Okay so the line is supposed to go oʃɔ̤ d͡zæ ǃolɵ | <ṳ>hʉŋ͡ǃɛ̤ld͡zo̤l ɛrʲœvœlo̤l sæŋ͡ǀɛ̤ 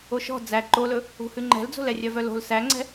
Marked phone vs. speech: correct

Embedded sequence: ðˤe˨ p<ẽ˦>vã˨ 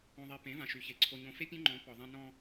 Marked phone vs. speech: incorrect: ẽ˨˦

